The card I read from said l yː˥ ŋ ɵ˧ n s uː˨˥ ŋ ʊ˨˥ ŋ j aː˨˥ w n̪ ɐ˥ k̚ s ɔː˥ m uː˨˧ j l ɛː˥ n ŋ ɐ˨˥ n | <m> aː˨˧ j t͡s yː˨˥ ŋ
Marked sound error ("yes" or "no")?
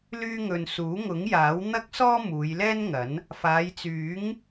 yes